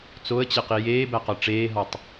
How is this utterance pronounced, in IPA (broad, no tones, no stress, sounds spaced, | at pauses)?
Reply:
t͡s o ə̯ t͡ɕ e q i j eː b æ q ɒ ʈ͡ʂ eː ɦ ɒ tˤ